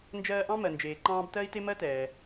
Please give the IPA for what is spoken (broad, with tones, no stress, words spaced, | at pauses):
nd͡ʒɜː˧ʔɑ̃˥ mɜ˩nd͡ʒeː˩ǃɑ̃ː˧b tɜ˥i̯te˥ mɜ˥tɛː˩